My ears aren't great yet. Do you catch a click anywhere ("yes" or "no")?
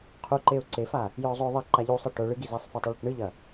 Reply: yes